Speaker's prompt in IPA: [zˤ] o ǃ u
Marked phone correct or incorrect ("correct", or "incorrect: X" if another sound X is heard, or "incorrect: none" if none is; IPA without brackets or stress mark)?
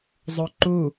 correct